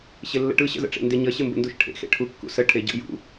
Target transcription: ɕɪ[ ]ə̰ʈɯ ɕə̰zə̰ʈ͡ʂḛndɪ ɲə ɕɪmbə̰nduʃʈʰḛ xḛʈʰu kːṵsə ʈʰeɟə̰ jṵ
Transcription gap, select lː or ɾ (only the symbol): lː